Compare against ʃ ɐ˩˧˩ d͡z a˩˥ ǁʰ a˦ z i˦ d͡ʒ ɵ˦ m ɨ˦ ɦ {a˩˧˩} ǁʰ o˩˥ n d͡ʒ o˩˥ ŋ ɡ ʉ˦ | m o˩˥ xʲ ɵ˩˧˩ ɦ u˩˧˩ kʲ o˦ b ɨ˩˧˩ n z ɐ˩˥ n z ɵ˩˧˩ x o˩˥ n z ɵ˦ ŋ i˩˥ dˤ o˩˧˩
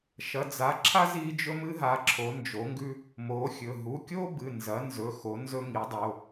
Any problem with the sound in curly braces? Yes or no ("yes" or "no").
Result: yes